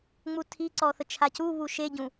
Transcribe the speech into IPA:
ŋ͡m u tʰ i ǀ ɔ θ ə t͡ʃʰ a c u β u ʃ e ɟ ũ

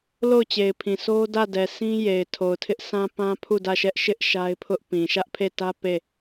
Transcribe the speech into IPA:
l o˦˨ ʊ̯ t͡ɕ e˨ ɪ̯ pʰ ĩ˨ s o˦ d ä˦˨ d ɛ˨ s ĩ˦ j e˨ ɪ̯ tʰ o˨ ʊ̯ tʰ ɪ˦ ʔ s ã˦ p ã˦ pʰ u˦˨ d ä˦˨ ʃ ɛ˦ ʔ ʃ ɪ˦ ʔ ʃ a˦ ɪ̯ pʰ ʊ˦ ʔ p ĩ˨ ʃ ä˦ ʔ pʰ e˦˨ t ä˦ p e˦˨

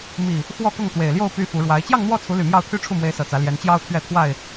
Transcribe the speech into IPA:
m i˨˩ | x w ɔ˥˨ k ʊ˥˨ ŋ t̪ w e˨˩ ɪ̯ l j o˥˨ ʊ̯ p y˦ f u˨˦ ɻ w a˨˦ ɪ̯ t͡ɕ j ɑ˥˨ ŋ n̪ w ɔ˥˨ t͡sʰ u˨˦ l y˨˩ m j ɑ˥˨ ʊ̯ t̪ʰ y˦ ʈ͡ʂʰ u˥˨ m w e˨˦ ɪ̯ s ɤ˨˩ t͡s ä˨˦ l j ɛ˨˦ n t͡ɕ j ɑ˦ ʊ̯ t̪ʰ ɥ ɛ˥˨ t̪ʰ w a˥˨ ɪ̯

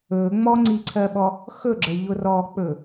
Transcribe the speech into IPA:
ɵ ŋ͡m ɔ ŋ͡ǀ i ǀʰ ɜ ɓ ɔ | x ɵ ɡ͡ǁ ə ʎ ʊ r ɔ k͡p ɵ

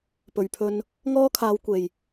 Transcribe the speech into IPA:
p ɵ˨˩ ɥ pʰ ɵ˧ n | ŋ ɔː˥ kʰ aː˨˧ w kʷ e˨˩ j

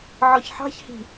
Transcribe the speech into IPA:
ʕ ɔ ç ħ ɑ̤ ç h i̤

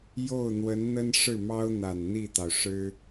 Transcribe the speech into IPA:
j o˥˩ ʊ̯ n̪ w ə˧˥ n n̪ ə˥ n ʂ ɻ̩˥˩ m ɑ˥ ʊ̯ n̪ a˨˩ n n̪ i˥˩ t̪ ɑ˩ ʊ̯ ʂ ɻ̩˥

